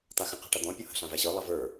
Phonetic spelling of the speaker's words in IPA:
t̪axə̃ qe̤ʈʌd̪ɔ̃ pʲohə̤ ɬãvæɕɤ lˠʌvə˞

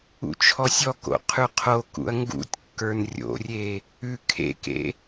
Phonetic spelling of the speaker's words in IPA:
ṵt͡ʃʰɔsʲɔko̰ qʰʉqʰokṵɐ̯ ŋɡṵtʲkːə˞n rʲo̰rʲe | ʉ kʰḛkḛ

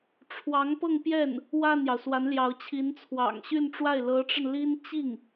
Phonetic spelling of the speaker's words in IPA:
ʈ͡ʂʰwɑ˧˥ŋpɤ˥˧ŋpjɛ˥˩n | wa˥˩njɑ˩ʊ̯swa˧˥n ljɑ˧˥ʊ̯t͡ɕʰi˧˥n t͡sʰwɑ̰˨˩ŋɕy˥˧nʈ͡ʂwa˥˩ɪ̯ lɤ˧˥ʈ͡ʂə˧n li˥n t͡ɕi˥˩ŋ

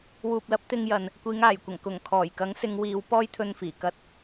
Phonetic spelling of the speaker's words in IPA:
wuː˨p̚lɐ˨˥p̚ t̪ɪ˧ŋjɐ˨n | kʷiː˨˧ŋaː˨˩jkʷɐ˨˩ŋ kʊ˨˩ŋ kʰɔː˨˩jkɐ˨˥ŋ sɪ˨˧ŋwiː˨˧w pɔː˥jt̪ʰɵ˧nfiː˨˩ kɐ˧t̚

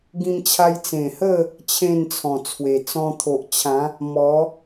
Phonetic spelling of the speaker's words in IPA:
ɡĩ˧mt͡ɕʰa˧j t͡sẽ˨˩hə˥˧ | t͡ɕʰẽ˥˧nt͡sʰɔ̃˨˩t͡sʰwe˨˩ t͡sɔ̃˧t̪ʰo˨ʔt͡ɕʰã˨˦ | mɔ˨˦

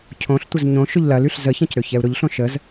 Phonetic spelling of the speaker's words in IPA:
cʰõɬtʷəz ɲõ ʃʊʎlɐlyɬ zəçɐ̃c ɾøçɛu̯ɾʊʎɬõ ʃəz

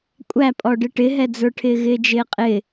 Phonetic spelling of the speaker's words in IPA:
kʷʼæpʼɔɖɪ ʈɪɦɛd͡zə˞ʈʰɪː ɣɪːd͡ʒɪːqʼɪ

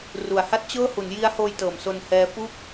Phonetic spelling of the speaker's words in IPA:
ru˩˦a̯ha˥˩t̚t͡ɕɤː˥˩ hu˩˦nji˦˥a̯hoː˧j tɤː˩˦mso˧nhɛː˦˥ fu˥˩k̚

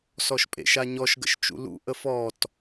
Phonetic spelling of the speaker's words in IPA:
sɔʃpʼḛʃaɲɔʃ ɡə̰ʃt͡ʃṵlṵ ʔəfɔt

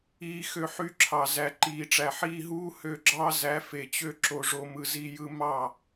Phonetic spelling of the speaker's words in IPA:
iː˧xø˧ħy˧ǁʰɑ˨ zæ˨ǃiː˨ʈ͡ʂæ˨ ħiː˧ɦuː˦ hø˧ɡ͡ǁɑ˦ zæ˨˦fe˨t͡ɕø˧ ǁo˧ʐo˧ mɯ˨zi˧jɯ˧ mɑ˦˨

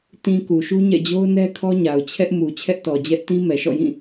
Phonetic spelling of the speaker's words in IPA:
tĩ˨ ku˨ʃu˦ɲɛ̰˦˨ d͡ʑo˦ʊ̯nɛ˦kʰɔ˦ɲa˨ʊ̯ t͡ɕʰɛ˦ʔmu˨ t͡ɕʰɛ˦ʔtɔ˨d͡ʑɛ˦ʔ tĩ˦mɛ˨ʃɔ̰˦˨jĩ˦˨

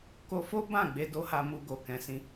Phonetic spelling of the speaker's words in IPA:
ko˧fo˦ bã˦˨ɡ͡be˧ do˦ha˧mu˧ ɡo˨kɛ̃˨˦sĩ˧

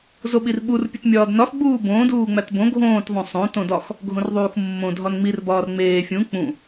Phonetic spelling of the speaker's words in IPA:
zoɓirɓur pʲutmʲɒːdnɒx ɡ͡buːbõː duːŋ͡mætbõ ɡʱõːt ðˤõsˤõ tõdɒx | ɡʱõrðˤuːxmːõ dʱɒnŋ͡mir bɒːrŋ͡meː fʲũ k͡pũ

